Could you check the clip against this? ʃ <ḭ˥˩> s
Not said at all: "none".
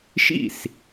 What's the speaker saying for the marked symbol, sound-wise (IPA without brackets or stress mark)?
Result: ḭ˥˩